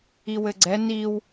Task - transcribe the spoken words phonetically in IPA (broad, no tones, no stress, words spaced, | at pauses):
iwɘɡ͡ǀɛ niw